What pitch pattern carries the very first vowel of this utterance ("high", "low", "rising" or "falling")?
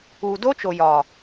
low